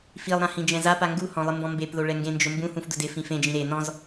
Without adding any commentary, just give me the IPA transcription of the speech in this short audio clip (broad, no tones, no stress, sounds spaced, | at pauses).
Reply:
f i lˠ ɾ ã h ĩ d͡ʒ ɛ̃ z a p a ŋ ɡ u h ɔ̃ lˠ ɪ m b ɔ̃ m b e p ð o ɭ ɛ ŋ ɡ ẽ n d͡ʒ ʊ m b ũ h ũ f d ʊ d ɪ f ĩ f ẽ d͡ʒ ĩ ɾ e n ɔ̃ z